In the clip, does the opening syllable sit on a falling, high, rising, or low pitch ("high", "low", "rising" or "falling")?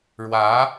rising